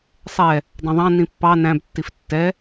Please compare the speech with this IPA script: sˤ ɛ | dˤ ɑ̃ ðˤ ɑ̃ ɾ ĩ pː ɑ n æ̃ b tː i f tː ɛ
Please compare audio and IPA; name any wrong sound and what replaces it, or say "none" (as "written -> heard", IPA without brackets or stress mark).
ɾ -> n